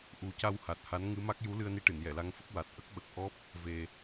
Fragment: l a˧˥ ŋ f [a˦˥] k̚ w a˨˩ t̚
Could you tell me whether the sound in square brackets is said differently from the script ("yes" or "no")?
yes